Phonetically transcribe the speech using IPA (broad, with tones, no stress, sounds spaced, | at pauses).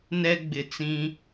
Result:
n ɛ˦ ɡ͡b ɪ˨ t͡s ĩ˦